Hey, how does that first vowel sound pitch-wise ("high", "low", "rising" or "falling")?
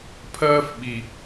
high